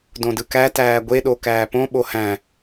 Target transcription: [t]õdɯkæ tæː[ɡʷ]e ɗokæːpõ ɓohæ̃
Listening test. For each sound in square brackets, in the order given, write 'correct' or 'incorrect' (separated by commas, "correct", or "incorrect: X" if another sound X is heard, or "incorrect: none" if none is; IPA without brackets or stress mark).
incorrect: d, correct